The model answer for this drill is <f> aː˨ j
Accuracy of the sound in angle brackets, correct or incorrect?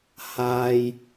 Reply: incorrect